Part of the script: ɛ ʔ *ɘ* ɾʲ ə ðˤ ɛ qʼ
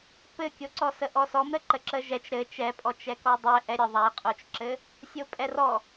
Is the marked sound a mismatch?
yes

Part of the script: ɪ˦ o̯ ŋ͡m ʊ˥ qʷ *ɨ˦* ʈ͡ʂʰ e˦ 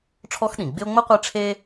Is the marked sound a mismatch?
yes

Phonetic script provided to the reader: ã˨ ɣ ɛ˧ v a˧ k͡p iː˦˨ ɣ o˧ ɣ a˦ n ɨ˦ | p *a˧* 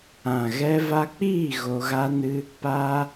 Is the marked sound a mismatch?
no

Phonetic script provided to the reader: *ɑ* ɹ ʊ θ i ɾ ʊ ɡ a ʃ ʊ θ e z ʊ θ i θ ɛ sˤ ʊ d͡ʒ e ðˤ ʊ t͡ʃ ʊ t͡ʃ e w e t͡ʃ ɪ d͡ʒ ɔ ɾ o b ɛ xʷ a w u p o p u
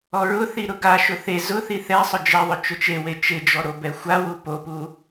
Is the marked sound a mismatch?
yes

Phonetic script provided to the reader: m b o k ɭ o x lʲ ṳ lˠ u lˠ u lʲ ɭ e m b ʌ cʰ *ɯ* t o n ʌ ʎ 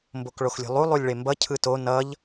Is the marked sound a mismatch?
no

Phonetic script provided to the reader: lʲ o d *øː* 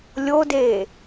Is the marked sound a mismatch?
yes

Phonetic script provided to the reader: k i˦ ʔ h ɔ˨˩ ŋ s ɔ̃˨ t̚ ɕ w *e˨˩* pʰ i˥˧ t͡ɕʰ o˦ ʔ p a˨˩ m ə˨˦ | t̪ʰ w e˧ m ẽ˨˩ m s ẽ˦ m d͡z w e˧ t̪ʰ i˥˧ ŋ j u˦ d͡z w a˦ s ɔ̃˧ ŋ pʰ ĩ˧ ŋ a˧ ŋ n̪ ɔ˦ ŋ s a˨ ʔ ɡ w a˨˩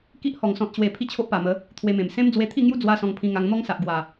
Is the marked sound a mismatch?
no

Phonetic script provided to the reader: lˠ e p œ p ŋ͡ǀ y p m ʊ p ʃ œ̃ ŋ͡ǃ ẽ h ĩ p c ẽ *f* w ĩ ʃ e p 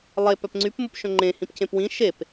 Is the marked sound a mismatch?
yes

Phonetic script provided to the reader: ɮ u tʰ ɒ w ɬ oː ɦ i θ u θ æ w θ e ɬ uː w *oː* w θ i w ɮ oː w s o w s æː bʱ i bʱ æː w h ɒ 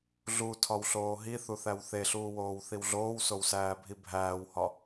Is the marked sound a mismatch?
no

